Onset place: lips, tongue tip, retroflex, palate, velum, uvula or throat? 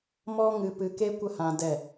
lips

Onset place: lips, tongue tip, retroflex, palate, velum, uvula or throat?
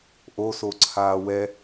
throat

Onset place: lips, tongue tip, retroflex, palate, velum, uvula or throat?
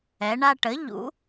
retroflex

